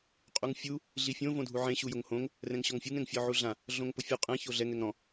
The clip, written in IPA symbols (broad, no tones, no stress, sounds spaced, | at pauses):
qʼ u ŋ fʲ u | ɮ i fʲ õ v õ dʱ u ʕ ẽ ɕ u j ʊ ŋ h õ ŋ | r ɛ̃ ŋ ɕ ɔ ŋ fʲ u ŋ ɛ̃ ŋ fʲ ɔ ʕ u ɮ ã | ɮ õ ŋ p ʊ fʲ u qʼ ɛ̃ ç o ɮ ɛ ŋ ɛ ŋ ɾ ɔ̃